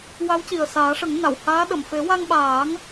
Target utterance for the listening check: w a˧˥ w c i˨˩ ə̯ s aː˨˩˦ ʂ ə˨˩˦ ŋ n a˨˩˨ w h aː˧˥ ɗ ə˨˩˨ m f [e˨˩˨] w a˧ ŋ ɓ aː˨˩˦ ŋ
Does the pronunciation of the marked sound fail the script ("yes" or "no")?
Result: yes